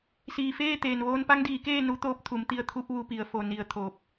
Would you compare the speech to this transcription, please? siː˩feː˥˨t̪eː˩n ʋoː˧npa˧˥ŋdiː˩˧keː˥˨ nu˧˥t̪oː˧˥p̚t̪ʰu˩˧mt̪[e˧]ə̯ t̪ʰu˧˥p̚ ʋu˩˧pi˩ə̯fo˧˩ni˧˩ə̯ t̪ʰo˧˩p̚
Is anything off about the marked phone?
yes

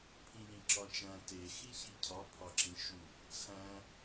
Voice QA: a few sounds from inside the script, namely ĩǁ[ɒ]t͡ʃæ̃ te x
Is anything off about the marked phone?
no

